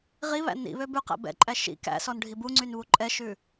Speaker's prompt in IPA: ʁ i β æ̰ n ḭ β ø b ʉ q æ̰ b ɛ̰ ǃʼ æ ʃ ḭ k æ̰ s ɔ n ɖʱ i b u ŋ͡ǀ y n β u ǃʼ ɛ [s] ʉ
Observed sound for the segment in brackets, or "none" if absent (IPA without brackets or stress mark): ʃ